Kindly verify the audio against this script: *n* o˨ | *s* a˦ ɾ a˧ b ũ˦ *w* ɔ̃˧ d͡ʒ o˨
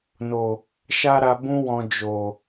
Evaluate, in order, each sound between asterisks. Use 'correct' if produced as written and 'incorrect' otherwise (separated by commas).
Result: correct, incorrect, correct